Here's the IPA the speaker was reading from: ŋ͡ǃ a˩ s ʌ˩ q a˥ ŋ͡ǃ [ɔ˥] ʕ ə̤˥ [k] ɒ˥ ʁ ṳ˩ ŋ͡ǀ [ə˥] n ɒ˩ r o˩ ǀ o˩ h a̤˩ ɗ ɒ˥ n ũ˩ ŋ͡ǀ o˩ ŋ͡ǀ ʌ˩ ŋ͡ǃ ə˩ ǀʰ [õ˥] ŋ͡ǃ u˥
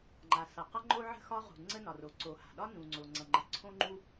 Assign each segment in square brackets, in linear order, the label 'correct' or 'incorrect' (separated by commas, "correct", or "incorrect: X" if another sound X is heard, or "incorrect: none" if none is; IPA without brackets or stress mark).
incorrect: o˥, incorrect: x, correct, correct